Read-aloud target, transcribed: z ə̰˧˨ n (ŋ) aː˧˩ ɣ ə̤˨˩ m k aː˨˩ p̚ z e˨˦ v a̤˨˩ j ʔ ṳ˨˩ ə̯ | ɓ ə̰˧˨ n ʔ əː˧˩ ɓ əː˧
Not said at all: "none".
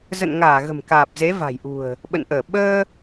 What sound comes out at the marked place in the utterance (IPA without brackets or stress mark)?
ŋ